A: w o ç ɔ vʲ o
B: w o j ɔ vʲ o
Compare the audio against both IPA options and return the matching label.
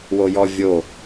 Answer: B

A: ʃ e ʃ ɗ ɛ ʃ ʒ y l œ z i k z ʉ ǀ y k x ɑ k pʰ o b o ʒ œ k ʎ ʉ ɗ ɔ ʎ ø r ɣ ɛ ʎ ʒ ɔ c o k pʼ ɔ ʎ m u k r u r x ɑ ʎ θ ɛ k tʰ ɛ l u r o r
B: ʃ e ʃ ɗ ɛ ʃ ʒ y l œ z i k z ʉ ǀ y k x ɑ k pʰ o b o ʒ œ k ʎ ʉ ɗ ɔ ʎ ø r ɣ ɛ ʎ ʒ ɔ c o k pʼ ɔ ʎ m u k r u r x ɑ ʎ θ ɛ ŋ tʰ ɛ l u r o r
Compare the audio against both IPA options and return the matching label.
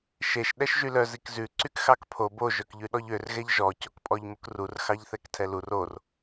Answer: A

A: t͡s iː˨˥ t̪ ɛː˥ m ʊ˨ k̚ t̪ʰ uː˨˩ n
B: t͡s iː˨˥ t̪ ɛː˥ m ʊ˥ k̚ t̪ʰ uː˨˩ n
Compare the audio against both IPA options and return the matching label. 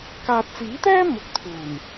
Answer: A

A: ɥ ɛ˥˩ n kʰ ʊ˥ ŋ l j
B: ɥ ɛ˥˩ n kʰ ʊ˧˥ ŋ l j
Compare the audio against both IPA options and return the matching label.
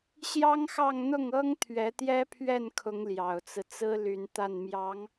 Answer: B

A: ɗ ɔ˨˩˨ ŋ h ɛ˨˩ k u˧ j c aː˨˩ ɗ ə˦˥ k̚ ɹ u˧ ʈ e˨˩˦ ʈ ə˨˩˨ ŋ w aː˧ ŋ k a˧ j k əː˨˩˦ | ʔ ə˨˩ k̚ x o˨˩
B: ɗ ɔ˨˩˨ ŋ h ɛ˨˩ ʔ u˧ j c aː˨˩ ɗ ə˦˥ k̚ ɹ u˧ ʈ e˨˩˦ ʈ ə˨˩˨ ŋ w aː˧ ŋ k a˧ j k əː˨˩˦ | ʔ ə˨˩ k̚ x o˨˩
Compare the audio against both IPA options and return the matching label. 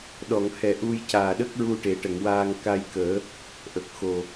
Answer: B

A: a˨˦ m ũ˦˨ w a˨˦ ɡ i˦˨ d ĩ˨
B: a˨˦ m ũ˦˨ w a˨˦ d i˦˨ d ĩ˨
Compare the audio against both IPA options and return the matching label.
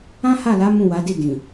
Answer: B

